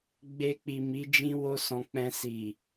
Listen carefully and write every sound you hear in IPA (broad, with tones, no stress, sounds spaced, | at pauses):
ɡ͡b e˧ k͡p i˨ m i˨˦ d͡ʒ ĩ˦ w o˦ s ɔ̃˧ k͡p ɛ̃˧ s i˨